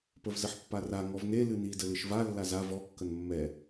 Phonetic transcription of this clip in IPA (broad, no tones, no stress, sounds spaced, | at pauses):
p ə v z ə ħ pː a r a ŋ ɔ v n e l ɨ n i d ə l ɨ ʃ v a lː a z a v ɔ kː ə n mː ɛ